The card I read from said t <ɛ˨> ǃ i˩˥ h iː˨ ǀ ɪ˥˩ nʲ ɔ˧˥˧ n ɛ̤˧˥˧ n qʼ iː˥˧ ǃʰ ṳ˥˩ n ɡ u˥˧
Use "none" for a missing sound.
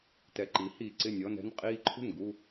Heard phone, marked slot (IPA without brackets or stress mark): ɛ˨